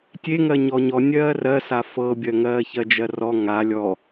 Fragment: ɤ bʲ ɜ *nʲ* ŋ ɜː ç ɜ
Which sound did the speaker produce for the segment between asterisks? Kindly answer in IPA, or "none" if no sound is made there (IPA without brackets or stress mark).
none